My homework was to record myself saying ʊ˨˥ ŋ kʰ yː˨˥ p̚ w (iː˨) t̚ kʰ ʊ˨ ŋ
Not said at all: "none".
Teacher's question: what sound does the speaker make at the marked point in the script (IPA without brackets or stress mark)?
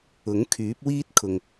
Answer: iː˥